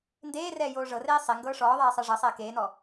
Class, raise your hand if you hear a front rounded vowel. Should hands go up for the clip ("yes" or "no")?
no